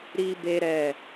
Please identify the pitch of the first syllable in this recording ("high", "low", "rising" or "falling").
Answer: high